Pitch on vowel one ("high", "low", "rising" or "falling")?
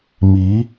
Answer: rising